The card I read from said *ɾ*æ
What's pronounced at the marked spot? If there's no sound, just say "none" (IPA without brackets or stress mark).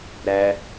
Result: ɾ